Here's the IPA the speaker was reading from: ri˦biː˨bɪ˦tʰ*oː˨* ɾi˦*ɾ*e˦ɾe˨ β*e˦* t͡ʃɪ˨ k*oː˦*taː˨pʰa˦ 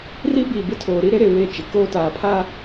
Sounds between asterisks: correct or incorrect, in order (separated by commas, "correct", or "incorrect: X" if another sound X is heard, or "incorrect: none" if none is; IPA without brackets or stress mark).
correct, correct, incorrect: e˦˨, correct